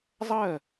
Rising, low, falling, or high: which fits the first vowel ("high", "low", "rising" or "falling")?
falling